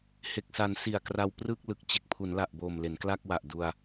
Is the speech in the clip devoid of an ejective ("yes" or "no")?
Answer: yes